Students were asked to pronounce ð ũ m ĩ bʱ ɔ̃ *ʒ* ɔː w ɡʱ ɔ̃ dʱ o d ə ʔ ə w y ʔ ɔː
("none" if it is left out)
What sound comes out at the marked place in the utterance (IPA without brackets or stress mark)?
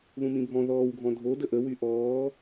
ð